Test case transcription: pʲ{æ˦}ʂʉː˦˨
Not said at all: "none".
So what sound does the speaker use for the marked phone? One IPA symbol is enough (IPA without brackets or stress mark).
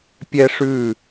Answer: ɛ˦